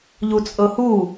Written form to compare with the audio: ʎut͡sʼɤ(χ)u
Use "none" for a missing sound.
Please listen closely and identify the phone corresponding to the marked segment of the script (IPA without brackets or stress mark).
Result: h